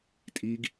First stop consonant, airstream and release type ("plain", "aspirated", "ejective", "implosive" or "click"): ejective